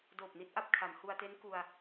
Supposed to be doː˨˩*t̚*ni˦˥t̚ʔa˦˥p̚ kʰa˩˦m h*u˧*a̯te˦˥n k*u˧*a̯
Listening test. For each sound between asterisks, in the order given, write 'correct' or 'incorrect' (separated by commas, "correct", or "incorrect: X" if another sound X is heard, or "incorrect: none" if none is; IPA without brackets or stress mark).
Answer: incorrect: p̚, correct, correct